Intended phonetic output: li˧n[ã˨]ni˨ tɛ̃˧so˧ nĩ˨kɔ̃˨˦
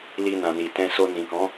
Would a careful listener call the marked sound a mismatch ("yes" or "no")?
no